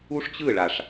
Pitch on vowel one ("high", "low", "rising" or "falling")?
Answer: high